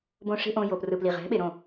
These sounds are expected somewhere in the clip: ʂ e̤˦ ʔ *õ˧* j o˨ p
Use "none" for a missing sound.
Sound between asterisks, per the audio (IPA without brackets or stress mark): õ˧